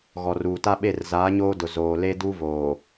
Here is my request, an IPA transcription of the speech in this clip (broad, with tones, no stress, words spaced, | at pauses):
ɣɔ˨ruː˨ta˦ɓe˦˨r zaː˨˦ɲoː˦dʊ˨ zoː˨ le˦du˦voː˨